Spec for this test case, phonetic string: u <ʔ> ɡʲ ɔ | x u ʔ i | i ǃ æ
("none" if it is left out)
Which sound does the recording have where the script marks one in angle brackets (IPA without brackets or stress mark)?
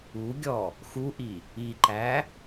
none